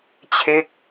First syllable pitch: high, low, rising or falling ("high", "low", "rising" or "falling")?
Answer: falling